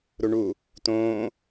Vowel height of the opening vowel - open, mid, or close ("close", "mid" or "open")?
close